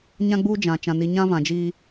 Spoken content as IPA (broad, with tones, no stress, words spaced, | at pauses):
ɲã˦ɡ͡buː˦ d͡ʒã˨ t͡ʃã˨ni˨ ɲã˦vã˨d͡ʒiː˦